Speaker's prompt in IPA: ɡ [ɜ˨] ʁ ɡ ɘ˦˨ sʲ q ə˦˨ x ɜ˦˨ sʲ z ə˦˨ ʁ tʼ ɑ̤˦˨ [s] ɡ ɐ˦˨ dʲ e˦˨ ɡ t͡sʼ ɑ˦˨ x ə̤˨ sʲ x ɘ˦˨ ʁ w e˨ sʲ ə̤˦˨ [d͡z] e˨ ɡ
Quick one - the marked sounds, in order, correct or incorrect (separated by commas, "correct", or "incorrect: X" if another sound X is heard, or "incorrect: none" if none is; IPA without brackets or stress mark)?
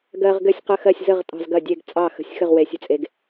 correct, incorrect: z, incorrect: t͡sʼ